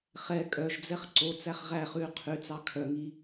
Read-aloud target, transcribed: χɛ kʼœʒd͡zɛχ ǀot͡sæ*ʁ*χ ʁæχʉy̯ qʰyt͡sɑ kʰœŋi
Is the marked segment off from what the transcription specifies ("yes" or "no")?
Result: yes